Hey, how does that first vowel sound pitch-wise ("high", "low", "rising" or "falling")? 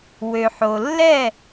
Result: low